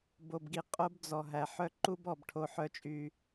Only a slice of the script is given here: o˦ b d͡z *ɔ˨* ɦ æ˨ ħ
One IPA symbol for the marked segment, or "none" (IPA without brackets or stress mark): ɔ˨